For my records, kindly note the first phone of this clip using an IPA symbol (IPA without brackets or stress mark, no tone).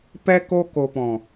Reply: p